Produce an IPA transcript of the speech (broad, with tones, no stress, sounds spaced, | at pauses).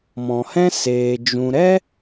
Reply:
m ɔ̃˨ h ɛ̃˦ s eː˧ d͡ʒ ũ˧ ɾ ɛ˦